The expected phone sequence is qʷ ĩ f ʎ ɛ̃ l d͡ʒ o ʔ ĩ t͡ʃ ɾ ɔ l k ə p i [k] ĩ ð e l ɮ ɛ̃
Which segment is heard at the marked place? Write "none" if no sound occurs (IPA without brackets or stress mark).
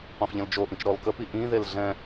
ʔ